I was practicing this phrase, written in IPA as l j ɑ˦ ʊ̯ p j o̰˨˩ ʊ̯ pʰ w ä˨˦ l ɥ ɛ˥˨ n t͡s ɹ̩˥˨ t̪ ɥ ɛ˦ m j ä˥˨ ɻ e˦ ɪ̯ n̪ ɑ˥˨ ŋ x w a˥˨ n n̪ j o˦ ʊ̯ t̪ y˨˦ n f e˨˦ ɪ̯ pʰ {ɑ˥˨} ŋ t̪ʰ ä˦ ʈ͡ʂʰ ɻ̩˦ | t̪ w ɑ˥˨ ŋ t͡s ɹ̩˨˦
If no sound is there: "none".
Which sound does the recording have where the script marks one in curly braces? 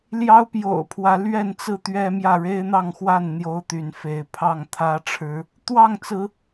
ɑ˥˨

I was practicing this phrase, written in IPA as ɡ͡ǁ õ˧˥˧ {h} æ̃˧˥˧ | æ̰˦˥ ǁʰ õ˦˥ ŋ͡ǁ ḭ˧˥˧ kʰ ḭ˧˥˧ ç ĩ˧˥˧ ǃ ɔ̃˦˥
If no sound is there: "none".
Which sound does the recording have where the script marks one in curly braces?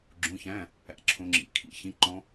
ç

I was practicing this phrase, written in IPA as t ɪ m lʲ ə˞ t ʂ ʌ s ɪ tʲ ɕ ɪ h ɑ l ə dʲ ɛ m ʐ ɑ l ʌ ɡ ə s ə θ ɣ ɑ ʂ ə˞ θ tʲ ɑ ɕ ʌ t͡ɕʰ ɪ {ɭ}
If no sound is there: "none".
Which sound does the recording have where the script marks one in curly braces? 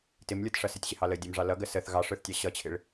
ɭ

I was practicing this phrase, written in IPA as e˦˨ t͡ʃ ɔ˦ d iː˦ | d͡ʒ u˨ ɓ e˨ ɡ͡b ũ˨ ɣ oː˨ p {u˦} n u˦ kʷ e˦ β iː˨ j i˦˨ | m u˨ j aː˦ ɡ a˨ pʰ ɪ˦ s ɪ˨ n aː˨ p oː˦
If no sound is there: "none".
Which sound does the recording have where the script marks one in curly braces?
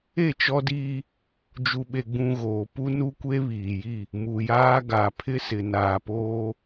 u˦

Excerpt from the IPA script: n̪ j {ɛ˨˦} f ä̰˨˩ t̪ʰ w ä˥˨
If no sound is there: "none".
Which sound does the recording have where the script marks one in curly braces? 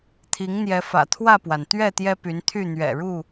ɛ˨˦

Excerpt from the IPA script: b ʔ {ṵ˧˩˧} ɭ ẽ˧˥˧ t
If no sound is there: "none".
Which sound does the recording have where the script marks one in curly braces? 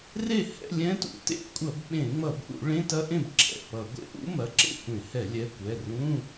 ṵ˧˩˧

